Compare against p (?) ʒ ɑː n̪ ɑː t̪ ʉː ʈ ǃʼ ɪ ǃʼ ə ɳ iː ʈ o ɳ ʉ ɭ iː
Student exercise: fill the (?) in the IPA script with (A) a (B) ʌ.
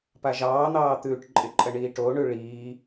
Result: A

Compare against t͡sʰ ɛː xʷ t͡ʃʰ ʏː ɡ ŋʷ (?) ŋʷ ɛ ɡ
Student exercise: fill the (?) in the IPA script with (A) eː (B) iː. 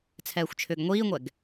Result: B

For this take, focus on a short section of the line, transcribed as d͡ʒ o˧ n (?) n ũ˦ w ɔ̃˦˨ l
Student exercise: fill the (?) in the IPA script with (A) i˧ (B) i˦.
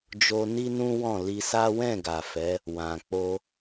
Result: B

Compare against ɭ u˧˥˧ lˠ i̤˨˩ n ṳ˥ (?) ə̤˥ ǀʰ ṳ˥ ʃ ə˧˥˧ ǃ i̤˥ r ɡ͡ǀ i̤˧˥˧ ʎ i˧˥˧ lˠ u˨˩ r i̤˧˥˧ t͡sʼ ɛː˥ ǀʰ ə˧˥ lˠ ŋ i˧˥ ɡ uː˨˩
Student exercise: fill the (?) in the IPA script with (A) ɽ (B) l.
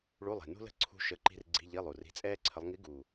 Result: B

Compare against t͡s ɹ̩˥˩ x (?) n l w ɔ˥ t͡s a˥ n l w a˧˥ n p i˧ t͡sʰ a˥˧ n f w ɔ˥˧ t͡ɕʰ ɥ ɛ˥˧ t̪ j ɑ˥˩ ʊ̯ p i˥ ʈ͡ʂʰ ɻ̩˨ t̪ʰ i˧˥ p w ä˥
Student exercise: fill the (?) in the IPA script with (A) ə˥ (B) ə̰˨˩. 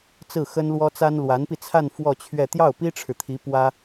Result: A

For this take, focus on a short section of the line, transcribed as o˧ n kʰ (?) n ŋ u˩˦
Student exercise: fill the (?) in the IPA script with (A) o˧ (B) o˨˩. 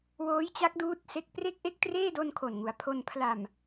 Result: B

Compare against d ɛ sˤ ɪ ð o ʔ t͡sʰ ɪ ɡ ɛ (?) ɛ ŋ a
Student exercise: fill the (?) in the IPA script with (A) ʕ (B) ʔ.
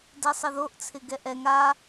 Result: B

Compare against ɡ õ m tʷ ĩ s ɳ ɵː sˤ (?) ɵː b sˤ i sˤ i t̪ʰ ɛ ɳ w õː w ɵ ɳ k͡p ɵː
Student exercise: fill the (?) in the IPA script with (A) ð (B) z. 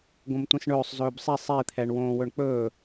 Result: B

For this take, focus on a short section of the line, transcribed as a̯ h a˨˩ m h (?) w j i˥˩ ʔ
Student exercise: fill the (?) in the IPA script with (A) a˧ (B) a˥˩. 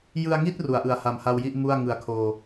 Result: A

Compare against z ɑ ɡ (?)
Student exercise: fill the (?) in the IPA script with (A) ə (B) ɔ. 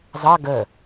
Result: A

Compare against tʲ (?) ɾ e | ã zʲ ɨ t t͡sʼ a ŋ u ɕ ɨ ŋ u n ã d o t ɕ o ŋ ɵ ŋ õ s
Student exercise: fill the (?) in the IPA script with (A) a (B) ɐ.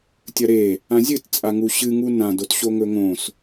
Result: B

